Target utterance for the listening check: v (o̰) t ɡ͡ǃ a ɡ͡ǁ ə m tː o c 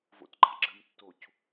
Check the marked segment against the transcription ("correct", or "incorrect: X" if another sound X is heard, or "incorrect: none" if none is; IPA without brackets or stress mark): correct